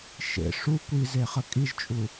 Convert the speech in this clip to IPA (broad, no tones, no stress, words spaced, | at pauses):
ʃḛ ʂu kʷize χəkʼiʒt͡ʃʼu